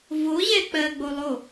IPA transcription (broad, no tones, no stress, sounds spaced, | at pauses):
v o ʑ ɛ k͡p ɜ ɡ͡b o lˠ o